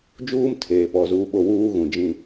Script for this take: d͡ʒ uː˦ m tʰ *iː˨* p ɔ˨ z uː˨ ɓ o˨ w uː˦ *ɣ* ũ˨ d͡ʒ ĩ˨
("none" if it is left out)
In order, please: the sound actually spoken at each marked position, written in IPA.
eː˨, ɣ

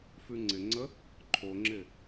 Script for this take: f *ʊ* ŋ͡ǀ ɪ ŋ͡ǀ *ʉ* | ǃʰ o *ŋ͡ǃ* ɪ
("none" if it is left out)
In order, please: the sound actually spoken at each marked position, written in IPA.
ʉ, ə, ŋ͡ǁ

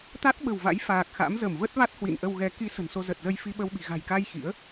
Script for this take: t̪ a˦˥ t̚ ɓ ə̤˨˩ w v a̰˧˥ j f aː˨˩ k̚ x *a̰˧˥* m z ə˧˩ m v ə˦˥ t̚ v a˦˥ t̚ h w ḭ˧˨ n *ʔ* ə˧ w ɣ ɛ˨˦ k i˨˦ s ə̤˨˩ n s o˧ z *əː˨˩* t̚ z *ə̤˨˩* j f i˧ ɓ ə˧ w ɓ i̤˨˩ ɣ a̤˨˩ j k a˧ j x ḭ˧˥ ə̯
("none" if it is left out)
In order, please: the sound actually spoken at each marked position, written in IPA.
a̰˧˥, ʔ, ə˨˩, ə˧

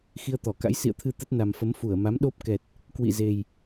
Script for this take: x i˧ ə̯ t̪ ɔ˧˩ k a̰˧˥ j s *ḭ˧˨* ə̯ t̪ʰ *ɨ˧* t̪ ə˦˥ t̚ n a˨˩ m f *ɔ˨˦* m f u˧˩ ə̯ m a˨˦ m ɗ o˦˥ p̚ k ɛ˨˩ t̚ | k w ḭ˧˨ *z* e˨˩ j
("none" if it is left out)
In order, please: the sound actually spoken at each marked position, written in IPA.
ḭ˧˨, ɨ˧, ə˨˦, z

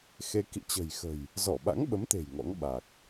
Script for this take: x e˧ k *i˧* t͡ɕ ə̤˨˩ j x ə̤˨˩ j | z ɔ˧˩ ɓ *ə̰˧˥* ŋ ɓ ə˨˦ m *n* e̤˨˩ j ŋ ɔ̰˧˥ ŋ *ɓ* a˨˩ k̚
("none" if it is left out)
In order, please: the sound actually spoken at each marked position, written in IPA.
ḭ˧˨, a̰˧˥, t̪, ɓ

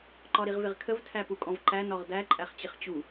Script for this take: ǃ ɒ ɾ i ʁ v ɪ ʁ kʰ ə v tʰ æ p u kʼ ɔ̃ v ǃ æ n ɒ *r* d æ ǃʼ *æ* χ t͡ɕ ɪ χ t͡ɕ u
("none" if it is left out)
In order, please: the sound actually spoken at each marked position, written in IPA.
ʁ, æ

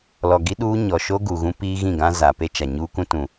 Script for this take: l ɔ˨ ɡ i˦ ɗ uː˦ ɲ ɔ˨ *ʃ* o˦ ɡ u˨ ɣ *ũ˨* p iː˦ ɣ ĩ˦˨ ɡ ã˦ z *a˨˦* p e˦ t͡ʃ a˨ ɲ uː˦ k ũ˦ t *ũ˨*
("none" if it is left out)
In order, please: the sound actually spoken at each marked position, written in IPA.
ʃ, ũ˦, a˨, ũ˨

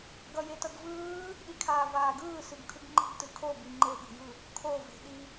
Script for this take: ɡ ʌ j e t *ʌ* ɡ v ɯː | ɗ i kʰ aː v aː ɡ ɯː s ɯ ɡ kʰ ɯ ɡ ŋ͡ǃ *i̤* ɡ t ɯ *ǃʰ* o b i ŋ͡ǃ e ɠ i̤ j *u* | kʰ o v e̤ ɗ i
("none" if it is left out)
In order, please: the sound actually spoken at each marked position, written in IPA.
ʌ, i̤, kʰ, ɯ

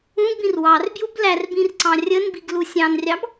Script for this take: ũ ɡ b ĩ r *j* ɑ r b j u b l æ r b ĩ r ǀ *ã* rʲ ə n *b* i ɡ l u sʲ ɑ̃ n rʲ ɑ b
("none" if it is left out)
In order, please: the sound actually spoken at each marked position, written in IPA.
w, ɑ̃, b

